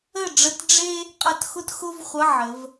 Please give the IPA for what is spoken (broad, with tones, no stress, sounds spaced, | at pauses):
ə˦˨ ɖ͡ʐ ə˧˥˧ t ɖ͡ʐ e˥ | qʼ ʌ˦˨ t x ʊ˥ t x ʊ˥ v χʷ ʌ˧˥˧ ʕ ə˩˧ v